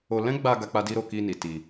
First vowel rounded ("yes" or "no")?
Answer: yes